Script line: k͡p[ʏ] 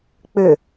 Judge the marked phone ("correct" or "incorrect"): correct